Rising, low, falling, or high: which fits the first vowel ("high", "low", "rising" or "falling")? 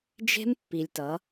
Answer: high